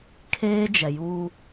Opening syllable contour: high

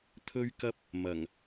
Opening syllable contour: high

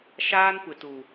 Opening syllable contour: high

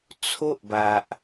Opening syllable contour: high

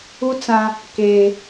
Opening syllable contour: high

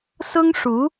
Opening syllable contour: high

